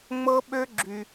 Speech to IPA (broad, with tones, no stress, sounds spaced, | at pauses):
ŋ͡m ɤ˦ ɓ ø˦ ɡ͡ǁ y˧